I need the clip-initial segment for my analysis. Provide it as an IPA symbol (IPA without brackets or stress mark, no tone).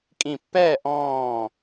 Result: kʼ